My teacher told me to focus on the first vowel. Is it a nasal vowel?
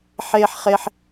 no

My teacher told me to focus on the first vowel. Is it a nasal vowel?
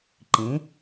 yes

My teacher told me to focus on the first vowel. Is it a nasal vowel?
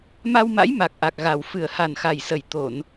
no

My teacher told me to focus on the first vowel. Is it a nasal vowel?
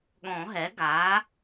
yes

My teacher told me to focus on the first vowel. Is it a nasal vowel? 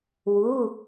no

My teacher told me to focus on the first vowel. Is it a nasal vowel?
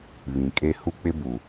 yes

